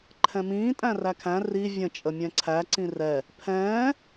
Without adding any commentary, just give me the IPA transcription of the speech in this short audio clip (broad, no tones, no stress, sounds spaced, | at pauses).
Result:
ǃʰ ɛ̃ m ĩː tʼ æ̃ r æ kʰ æ̃ r i vʲ ə̃ t͡ʃʼ ə mʲ ɛ̃ ǀʰ æ ǀ ĩ r ɛ | pʰ ɛ̃ː